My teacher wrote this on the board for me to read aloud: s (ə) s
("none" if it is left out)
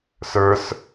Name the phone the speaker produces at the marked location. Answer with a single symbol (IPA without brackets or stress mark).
ə˞